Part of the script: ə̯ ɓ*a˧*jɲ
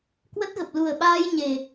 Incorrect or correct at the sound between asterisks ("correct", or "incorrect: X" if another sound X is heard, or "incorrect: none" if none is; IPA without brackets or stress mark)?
incorrect: aː˧